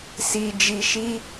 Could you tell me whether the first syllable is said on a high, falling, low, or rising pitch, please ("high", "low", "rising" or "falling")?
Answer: low